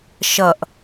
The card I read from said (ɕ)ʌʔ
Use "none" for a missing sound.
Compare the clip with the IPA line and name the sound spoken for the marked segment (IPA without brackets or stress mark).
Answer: ʃ